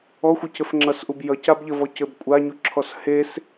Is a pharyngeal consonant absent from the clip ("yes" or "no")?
yes